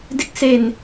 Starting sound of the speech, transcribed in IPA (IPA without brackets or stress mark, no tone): d